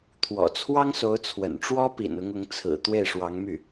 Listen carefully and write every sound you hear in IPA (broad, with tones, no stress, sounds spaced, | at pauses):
t̪ʰ w ɔ̰˨˩ t͡sʰ w ɑ˥ ŋ s o˧˥ ʊ̯ t͡sʰ w ə̰˨˩ n ʈ͡ʂ w ɔ˥ p ḭ˨˩ n ʊ˧˥ ŋ ʊ˧˥ ŋ t͡sʰ ɹ̩˨˩ t̪ w e˥˩ ɪ̯ ʂ w ɑ˧˥ ŋ m y˥˩